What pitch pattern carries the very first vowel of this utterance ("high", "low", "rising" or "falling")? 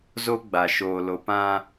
high